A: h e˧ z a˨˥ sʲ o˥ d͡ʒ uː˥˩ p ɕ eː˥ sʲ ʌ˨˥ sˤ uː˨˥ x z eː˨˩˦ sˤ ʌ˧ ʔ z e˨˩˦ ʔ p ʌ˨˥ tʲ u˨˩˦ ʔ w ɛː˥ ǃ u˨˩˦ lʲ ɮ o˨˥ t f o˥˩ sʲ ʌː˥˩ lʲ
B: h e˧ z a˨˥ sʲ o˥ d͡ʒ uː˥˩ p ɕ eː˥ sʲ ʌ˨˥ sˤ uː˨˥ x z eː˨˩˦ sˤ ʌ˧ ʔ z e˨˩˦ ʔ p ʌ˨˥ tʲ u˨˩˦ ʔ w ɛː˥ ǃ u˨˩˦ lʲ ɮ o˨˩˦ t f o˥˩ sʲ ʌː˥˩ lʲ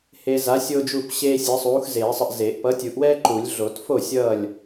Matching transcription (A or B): B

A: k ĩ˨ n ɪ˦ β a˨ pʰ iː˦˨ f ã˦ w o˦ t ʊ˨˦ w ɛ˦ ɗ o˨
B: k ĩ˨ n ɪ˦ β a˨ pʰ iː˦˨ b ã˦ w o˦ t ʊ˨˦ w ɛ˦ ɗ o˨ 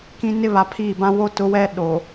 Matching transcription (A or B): B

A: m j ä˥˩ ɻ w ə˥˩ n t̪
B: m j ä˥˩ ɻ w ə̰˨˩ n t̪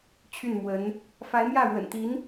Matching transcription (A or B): B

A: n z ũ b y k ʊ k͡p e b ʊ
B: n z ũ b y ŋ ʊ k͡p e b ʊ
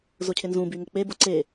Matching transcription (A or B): B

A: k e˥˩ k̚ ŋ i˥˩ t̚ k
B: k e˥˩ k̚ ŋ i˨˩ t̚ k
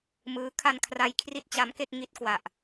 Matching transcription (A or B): A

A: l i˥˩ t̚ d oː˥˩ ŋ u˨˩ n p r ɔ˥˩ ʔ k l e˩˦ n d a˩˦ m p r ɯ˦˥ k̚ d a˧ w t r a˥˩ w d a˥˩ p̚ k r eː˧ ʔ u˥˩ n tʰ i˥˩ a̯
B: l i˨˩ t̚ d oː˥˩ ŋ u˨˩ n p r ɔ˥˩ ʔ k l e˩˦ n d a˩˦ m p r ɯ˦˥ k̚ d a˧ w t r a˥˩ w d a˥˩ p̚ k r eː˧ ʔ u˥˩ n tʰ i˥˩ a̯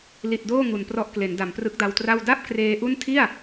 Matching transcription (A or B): B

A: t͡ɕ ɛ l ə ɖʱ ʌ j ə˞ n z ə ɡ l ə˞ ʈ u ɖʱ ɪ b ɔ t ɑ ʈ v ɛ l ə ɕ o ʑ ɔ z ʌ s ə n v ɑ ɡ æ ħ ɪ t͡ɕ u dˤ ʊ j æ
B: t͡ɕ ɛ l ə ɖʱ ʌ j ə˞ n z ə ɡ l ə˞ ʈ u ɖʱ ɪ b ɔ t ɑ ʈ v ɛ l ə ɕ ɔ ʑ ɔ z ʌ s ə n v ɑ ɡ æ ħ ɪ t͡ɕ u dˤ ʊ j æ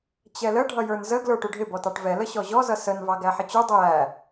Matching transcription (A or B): B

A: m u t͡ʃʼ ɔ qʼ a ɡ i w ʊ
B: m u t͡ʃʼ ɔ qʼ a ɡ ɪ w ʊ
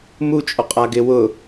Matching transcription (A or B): B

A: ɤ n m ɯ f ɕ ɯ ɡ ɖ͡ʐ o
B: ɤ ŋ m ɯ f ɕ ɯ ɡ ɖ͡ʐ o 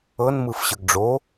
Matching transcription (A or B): A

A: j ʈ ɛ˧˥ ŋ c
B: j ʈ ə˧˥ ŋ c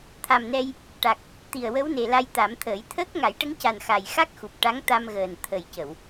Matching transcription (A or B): B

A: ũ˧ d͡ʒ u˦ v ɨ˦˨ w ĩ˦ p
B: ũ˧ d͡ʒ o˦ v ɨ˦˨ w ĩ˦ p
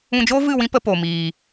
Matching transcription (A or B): B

